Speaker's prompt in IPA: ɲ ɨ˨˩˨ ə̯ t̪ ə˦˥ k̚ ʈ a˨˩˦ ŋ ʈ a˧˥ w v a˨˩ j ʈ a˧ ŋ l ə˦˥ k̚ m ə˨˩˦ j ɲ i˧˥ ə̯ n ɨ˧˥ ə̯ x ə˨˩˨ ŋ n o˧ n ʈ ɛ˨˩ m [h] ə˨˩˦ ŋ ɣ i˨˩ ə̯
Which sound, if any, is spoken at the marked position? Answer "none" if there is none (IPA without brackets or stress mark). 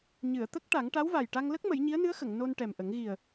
ʔ